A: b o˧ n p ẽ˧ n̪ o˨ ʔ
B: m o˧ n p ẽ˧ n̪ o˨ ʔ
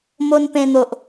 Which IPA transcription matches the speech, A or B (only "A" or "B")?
B